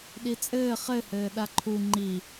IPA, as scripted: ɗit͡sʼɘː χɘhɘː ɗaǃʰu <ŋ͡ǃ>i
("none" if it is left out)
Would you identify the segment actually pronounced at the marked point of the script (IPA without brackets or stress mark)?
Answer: ŋ͡ǃ